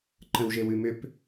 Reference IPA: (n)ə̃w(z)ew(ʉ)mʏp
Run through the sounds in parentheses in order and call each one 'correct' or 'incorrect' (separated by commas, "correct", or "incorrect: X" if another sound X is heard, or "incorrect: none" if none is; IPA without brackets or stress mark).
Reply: incorrect: ǃ, incorrect: ʒ, correct